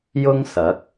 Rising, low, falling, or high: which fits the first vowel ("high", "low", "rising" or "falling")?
high